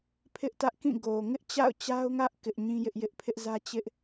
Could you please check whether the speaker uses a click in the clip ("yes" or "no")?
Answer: no